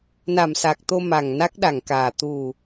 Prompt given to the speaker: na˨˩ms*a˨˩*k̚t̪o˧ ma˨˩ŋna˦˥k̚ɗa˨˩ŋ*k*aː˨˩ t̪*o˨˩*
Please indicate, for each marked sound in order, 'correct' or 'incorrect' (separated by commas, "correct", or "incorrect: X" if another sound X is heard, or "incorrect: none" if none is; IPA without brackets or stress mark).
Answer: correct, correct, incorrect: u˨˩